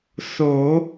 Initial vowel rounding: rounded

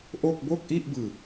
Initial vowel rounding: rounded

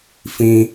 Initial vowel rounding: unrounded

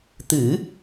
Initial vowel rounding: unrounded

